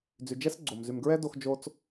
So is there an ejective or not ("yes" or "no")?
no